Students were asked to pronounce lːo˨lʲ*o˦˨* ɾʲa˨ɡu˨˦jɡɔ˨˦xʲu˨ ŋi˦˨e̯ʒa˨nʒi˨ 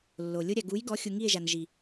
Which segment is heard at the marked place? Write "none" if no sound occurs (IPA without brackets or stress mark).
o˦